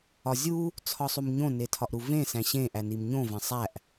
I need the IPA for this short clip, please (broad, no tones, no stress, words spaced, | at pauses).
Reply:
ɒzʲu | t͡sʰɒsˤumɲõ netʰɒʔɾuvẽ sæ̃ɕẽ ʔænimɲõ væ̃sˤæʔ